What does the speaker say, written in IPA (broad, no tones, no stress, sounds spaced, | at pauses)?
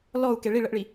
l ɔ u̯ k e ɭ i ɭ ə ʔ ɭ i